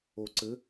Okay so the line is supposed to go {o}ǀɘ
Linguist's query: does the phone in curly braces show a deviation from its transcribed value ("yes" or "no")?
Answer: no